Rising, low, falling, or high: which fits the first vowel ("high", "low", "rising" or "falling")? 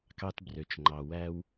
low